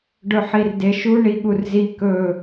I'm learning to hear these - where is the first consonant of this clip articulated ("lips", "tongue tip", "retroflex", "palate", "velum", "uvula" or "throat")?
retroflex